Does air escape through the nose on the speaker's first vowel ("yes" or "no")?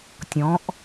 yes